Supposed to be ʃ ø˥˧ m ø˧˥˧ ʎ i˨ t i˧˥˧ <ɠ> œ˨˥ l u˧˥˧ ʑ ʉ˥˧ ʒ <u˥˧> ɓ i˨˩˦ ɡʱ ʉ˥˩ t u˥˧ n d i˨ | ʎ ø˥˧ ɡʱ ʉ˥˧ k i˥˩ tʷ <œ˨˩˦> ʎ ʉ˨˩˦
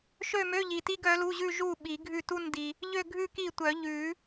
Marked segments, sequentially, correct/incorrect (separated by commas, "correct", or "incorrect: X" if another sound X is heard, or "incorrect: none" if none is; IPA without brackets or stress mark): incorrect: ɡ, incorrect: u˥˩, correct